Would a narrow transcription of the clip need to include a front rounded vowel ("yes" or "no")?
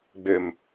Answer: yes